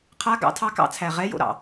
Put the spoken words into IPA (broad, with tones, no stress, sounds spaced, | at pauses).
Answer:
qʰ a˧˥˧ ɡ ɑ̰˧˥˧ tʰ ɑ˧˥˧ k ɑ̰˥˩ t͡sʰ æ˨˩ ʁ ɛ˧˥˧ j o̰˥˩ ɾ ɑ̰˨˩